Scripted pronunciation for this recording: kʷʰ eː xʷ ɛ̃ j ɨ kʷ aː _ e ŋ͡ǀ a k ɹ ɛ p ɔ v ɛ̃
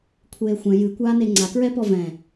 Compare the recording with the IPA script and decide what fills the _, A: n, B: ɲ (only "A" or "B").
A